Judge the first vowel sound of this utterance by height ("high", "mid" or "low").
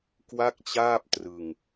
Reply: low